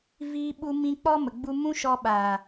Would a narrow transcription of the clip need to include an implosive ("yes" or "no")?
yes